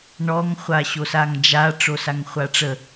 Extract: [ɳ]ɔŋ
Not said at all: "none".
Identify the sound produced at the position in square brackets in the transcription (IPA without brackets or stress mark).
ɳ